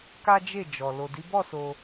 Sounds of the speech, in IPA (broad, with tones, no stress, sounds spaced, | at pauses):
k a˦ d͡ʒ e˦˨ d͡ʒ ɔ˨ l o˨ d i˨˦ b ɔ˦˨ s o˧